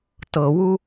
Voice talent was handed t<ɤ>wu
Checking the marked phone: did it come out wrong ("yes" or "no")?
no